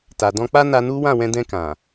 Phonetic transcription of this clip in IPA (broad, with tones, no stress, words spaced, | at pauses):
ta˨dɔ̃˧k͡pa˦ na˧nu˦ wã˦˨wɛ̃˧dɛ̃˧ kã˨